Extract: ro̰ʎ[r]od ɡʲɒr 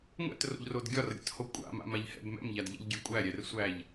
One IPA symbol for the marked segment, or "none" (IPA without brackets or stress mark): r